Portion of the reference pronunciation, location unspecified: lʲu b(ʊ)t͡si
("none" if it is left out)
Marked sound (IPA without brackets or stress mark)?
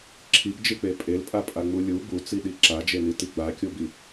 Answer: u